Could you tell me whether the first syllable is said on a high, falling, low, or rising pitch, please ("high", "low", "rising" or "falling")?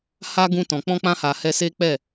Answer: high